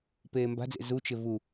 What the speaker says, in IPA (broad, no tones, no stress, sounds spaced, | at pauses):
p eː m b a̤ d͡z ḛ z u t͡ʃ ɪ v u